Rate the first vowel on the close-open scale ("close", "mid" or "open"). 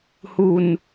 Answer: close